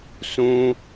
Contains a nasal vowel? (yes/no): yes